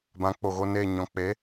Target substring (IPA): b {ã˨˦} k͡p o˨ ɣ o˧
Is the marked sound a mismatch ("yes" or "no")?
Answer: no